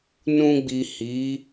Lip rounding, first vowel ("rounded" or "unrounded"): rounded